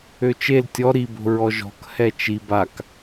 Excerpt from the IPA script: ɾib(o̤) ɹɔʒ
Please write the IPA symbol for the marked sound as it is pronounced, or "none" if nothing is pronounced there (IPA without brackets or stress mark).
o̤